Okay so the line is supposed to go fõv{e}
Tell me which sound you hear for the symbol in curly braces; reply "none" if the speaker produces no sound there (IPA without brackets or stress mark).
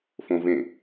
ẽ